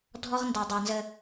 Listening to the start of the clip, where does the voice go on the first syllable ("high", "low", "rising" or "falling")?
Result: high